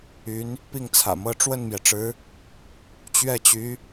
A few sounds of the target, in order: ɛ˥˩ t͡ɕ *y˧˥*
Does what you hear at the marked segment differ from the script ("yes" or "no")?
no